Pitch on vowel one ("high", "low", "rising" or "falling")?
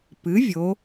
rising